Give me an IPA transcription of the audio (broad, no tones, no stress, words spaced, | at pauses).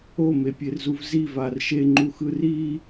omepʲerzuv zivar ʃeŋ͡ǃuxɯ ri